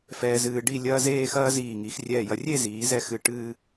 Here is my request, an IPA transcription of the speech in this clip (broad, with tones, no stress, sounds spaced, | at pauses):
f ɛː˧ z ɨː˧ ɖ i˥˧ lʲ ɐː˥ z eː˥˧ x ɐː˥ z iː˧˩ ŋ i˩˧ x rʲ ɛː˧˩ j ɐ˧ rʲ e˥˧ z iː˩˧ z ɛ˧ x ɨ˧˩ ʈ ɨː˥˧